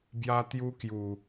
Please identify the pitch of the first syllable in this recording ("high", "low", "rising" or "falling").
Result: high